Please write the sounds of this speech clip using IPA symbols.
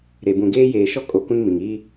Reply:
ɾe˨ bũ˨ɡeː˦jeː˨ ʃɔ˦kʼo˨ kũ˦n mĩ˨ŋ iː˦

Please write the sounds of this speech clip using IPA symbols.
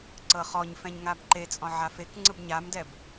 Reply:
ǀɤχɔɲfɛ̃ɲ ŋabǃet͡sʼɔ̃ ʕafekŋ͡ǀɯb ɲamdɛb

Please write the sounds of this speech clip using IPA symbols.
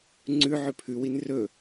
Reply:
ŋ͡ǀʉ ʕʉpʰʉwin rɵ

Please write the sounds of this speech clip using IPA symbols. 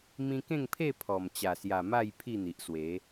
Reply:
mĩ˧kẽ˥˧ŋpʰe˥˧ pʰɔ˨˩m t͡ɕa˨˩sja˨˩ ma˥˧j pʰi˥˧n̪i˨ʔ swe˨˦

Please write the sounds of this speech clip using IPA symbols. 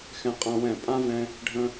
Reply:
xɛ̃˧qʼã˧ wɛ̃˦˨ pʼã˦vɛ̃˧ | ɖʱə̃˧

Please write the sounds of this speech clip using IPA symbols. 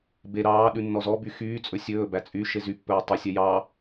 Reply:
be ɾɑːɗʉ nːɔzɔby xyːt͡sʼɵ sʲɵːbæ t͡sʼy ʃezypːɵː tˤʉsʲɛ jɑ

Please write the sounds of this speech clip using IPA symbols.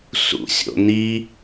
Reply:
sṵsʲo̰ni

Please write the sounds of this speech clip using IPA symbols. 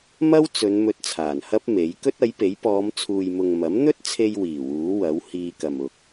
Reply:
mɐ˥wt͡sɵ˨˧n mɵ˧t̚t͡sʰaː˨˩nhɐ˥p̚ me˨˥j kɵ˥t̚ɐ˨˥jpe˨˥j pɔː˨˧mt͡sʰuː˨jmʊ˨ŋ mɐ˨˥mn̪ɵ˥t̚t͡sʰe˧j wiː˨˩ wuː˨˥wɐ˨˥w hiː˧kɐ˨m ʊ˨k̚

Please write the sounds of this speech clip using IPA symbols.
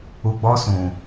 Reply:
u˨ɡ͡bɔ˧ sũ˨

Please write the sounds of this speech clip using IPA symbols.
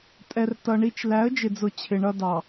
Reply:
tʼɛ˨rtʌ˨ ɳi˦t͡ʃ læ˨˦ə̯d͡ʒɪ˨d͡zʊ˨ t͡ɕʰɪ˨ɳʌ˦ dɑ˨

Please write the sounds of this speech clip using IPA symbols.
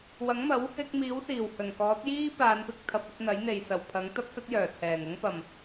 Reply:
wɐ˨˥ŋmɐ˨˥w | ɪ˧k̚miː˨˥w siː˨˩w hɵ˨˩nkɔː˨˥t̚ jiː˥ paː˨˧npɪ˨˥k̚ t̪ʰɐ˨p̚ɵ˨˥t̚n̪ɐ˨˥j n̪e˨jsɐ˨˩wpʰɐ˨˥ŋ t̪ɐ˥p̚sɐ˥t̚jœː˨˩t͡sʰɛː˨˩ŋ ʊ˥ŋpɐ˨˩m

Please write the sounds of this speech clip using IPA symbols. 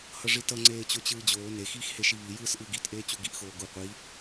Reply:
hʌʐitʌ ŋ͡ǀeːt͡ɕot͡ɕɯːd͡ʑoː ne xiːxheʃiβi jɯːsʔɯːɡit ʔeːt͡ɕuɡiʔ xoːɡu qʷi

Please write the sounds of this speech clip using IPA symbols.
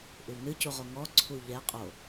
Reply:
ʔɨwnɨcuʁo ŋɔ ǀʰuʎɛ qʼo

